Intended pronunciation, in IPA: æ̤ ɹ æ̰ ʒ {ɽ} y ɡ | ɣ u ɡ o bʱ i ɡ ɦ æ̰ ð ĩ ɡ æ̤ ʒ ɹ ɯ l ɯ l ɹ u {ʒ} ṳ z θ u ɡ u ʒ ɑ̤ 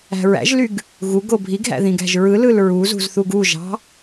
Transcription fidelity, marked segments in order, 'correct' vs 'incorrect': incorrect, incorrect

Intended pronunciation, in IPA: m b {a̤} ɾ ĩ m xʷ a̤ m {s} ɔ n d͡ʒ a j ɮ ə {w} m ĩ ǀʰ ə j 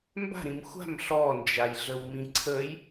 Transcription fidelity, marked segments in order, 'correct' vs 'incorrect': correct, incorrect, correct

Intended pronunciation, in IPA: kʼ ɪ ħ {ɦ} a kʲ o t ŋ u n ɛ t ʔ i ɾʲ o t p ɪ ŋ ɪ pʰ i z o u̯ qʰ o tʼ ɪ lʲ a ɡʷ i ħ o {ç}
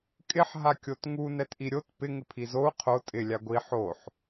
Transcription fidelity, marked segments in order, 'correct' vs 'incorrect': correct, incorrect

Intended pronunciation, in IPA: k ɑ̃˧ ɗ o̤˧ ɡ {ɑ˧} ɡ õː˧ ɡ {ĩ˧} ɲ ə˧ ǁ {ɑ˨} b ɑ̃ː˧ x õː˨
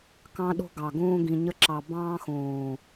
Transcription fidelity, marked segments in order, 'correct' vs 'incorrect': incorrect, incorrect, correct

